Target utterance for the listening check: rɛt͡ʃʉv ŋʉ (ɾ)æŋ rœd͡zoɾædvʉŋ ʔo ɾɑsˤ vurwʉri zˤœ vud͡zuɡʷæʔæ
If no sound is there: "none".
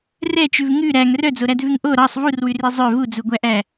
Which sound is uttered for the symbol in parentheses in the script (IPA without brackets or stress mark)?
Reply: ɾ